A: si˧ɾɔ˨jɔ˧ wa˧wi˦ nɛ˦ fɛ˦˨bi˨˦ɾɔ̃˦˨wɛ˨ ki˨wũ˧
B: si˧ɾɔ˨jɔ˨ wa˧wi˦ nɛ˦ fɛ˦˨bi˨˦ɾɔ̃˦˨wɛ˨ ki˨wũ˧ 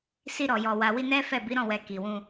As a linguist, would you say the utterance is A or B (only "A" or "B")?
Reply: B